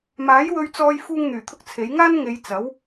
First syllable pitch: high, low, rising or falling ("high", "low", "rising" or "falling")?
rising